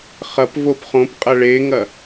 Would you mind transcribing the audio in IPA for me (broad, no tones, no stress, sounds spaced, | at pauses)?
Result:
χ ɐ p v o p χ õ p qʼ ɐ ɭ e ŋ ɐ